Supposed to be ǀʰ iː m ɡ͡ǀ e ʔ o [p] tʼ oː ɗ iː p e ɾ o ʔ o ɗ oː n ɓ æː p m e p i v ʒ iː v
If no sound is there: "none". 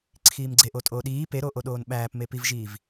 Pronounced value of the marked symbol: none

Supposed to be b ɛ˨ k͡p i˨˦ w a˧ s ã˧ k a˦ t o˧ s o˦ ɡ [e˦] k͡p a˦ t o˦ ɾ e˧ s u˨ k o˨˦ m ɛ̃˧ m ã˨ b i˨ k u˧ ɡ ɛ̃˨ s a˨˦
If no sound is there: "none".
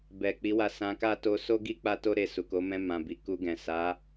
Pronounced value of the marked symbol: i˦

